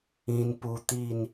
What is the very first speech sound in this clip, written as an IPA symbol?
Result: ĩ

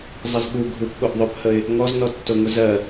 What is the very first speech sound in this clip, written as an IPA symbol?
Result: zˤ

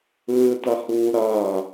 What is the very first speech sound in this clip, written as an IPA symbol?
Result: ɯː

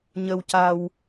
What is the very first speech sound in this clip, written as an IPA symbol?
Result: ɲ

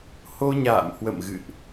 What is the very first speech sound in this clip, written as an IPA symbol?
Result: h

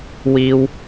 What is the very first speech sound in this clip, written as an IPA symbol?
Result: w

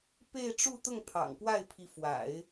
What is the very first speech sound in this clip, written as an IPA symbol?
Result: p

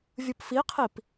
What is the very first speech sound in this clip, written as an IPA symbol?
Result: vʲ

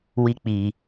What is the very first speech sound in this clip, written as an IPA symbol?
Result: w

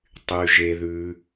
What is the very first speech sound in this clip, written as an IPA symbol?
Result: tˤ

